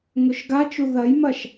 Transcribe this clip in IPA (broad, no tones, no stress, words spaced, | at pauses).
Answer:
ŋɵʃɡat͡ʃu ðɐjmɐʃ